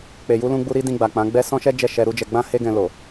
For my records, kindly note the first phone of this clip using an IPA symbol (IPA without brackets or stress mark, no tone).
k͡p